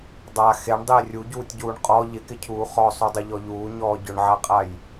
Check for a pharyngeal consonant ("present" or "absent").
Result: present